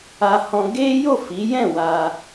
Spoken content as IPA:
a˧ h ɔ̃˧ ɡ e˦ j o˦˨ f i˨˦ j ɛ̃˦˨ w a˧

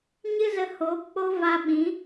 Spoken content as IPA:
ɲ ɨ˦ z ə˧ h oː˨˦ p k͡p o˦ v a˧ ɓ ĩ˨˦

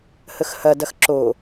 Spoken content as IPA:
h ə x h ɐ d ɐ x ǁ o

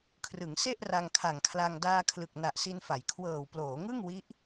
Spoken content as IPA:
kʰ r ɯ˩˦ ŋ s e˥˩ ʔ r a˧ ŋ kʰ a˨˩ ŋ kʰ l a˧ ŋ d aː˧ kʰ l ɯ˨˩ k̚ n a˨˩ ʔ s i˧ n f a˩˦ j kʰ w ɤː˨˩ w p l oː˩˦ ŋ ɯ˥˩ ŋ w i˦˥ ʔ

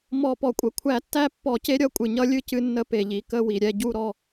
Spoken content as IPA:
m ɔ˧˩˧ p ɔ˩ kʷʼ ə˩ kʷʰ æ˧˩˧ tː æ˥˨ pː ɔ˧˩˧ c e˦ ɾʲ ʌ˥˨ kʷʼ ɨ˩ ɲ ʌ˦ lʲ ɨ˥˨ c ɨ˦ nː ə˦ p e˩ ʎ i˩ k ə˥˨ w i˩ ɾʲ ɛ˥˨ ɟ u˥˨ ɾ ɔ˥˨

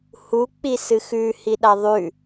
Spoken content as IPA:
h u k͡p i s ɨ x ʉ h i ɗ a ðˤ ʉ

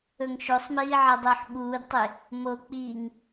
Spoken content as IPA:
ɵ ŋ ʃ o sˤ m iː ʕ ɐ dˤ ɵː ħ ɓ uː d tˤ e | m o k͡p iː ŋ

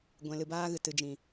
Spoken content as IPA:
ɡʷ ɛ̃˧ l ɨ˧ b aː˦ ɣ ɨ˨ t ɨ˨ d͡ʒ ĩ˨

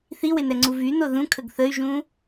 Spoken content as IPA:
θ i w e n ɛ ŋ͡ǀ u v y n o ð ũ kʰ ə ɡ θ ə y̯ ʒ ũ

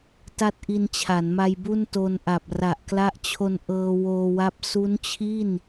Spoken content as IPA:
t a˥˩ t̚ ʔ i˧ n t͡ɕʰ a˩˦ n m a˧ j b u˥˩ n t o˧ n ʔ a˨˩ p̚ r a˨˩ ʔ k l a˦˥ ʔ t͡ɕʰ o˧ n ʔ ɤː˧ w oː˧ w a˦˥ p̚ s u˦˥ n t͡ɕʰ i˥˩ n

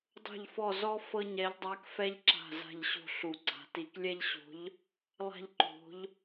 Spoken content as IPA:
dˤ o̤˦˨ ʎ f ɔ˦˨ z ɔ˥ f ɤ˥ ɲ ɛ˧˥ ʎ dˤ a˧˥ k f ɛ˥ ʎ ǁ a̤˦˨ z a̤˦˨ ʎ ɕ o̤˦˨ ɬ u˨˩˦ ɡ͡ǀ a̤˨˩˦ t i˨˩˦ k lʲ ɛ˥ ʎ ɕ o̤˧˥ ʎ | lˠ a̤˥ ʎ ǃ o̤˧˥ ʎ

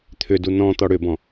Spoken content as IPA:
t̪ʰ ʏ d u n ɔ̃ t̪ ɔ ɽ ʏ b ɔ̃

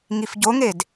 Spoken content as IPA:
ŋ i f ɟ o ŋ e d

